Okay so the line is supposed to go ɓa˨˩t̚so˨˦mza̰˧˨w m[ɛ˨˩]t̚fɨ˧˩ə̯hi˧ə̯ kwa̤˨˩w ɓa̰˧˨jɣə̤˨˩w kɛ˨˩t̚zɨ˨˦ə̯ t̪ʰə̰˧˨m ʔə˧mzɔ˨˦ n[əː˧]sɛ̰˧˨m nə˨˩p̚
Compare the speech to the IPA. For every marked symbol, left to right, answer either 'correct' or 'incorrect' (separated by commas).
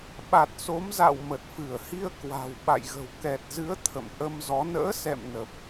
incorrect, incorrect